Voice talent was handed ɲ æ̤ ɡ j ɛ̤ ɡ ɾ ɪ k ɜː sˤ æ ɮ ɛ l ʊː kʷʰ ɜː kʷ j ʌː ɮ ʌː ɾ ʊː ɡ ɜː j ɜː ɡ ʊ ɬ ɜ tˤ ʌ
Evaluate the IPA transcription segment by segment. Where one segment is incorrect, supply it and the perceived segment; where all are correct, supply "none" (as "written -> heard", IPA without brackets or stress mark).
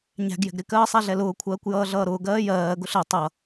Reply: none